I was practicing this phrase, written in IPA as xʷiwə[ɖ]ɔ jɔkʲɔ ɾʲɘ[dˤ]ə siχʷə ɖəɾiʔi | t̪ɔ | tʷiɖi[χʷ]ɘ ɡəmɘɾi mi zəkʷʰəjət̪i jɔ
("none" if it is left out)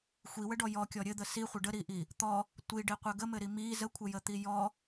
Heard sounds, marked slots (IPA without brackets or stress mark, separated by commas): ɖ, d̪, qʷ